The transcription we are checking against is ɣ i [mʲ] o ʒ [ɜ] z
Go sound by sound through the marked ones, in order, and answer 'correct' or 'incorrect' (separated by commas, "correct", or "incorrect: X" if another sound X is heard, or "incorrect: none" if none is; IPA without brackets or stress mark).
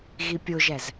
incorrect: pʲ, incorrect: æ